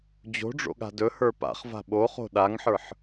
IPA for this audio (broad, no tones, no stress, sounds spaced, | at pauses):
d͡ʑ o̤ ɖ͡ʐ o̰ ɠ a̤ d ɵ h ə˞ p a̰ χ v a̤ ɓ o χ o̤ ɗ a ŋ ħ ə˞ ħ